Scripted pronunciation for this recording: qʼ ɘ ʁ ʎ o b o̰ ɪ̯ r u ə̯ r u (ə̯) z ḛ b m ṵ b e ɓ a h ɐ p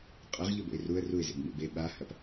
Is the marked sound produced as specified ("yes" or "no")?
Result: no